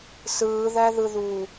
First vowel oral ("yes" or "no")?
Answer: yes